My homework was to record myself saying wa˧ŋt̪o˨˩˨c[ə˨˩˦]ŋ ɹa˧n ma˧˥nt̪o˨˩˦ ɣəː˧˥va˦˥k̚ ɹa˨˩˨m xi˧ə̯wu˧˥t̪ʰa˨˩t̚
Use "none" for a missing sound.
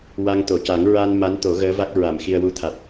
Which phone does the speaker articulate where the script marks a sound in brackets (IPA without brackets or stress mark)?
a˨˩˦